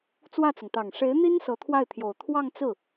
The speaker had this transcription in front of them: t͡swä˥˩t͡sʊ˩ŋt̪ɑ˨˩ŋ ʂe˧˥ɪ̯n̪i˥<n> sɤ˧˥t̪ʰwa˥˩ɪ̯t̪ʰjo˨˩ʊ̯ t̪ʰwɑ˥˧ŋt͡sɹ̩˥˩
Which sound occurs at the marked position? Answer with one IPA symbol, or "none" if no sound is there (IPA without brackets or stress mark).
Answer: n